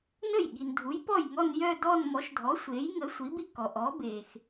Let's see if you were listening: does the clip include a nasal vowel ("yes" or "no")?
no